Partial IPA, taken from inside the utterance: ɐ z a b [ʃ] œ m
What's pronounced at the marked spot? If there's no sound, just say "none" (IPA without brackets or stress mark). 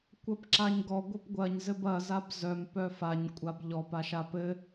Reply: z